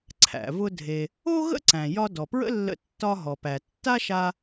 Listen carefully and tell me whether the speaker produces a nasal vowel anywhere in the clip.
yes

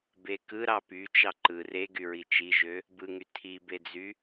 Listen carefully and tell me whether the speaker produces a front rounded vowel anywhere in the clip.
yes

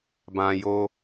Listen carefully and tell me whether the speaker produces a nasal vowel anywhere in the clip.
yes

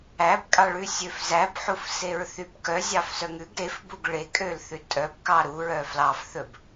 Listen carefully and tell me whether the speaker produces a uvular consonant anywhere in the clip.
no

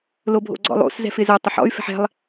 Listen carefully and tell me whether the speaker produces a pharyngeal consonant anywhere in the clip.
yes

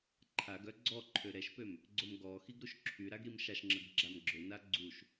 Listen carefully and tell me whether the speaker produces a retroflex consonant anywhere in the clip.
no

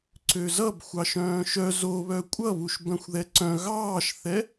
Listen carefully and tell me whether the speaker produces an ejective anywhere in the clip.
yes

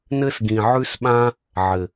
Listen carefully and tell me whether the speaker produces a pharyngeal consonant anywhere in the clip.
yes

